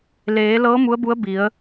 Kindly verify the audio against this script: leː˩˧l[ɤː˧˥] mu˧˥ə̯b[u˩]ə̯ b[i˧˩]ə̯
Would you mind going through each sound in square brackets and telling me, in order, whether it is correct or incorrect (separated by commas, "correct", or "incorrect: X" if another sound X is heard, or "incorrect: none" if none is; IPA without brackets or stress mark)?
correct, incorrect: u˧˥, incorrect: i˩˧